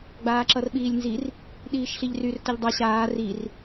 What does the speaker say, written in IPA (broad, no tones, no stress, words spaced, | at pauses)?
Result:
ɡ͡baːǁʌrɓiːlʲnzir | ɗiːʃɬiʎryr tʌʎdˤʌ ɕaː rir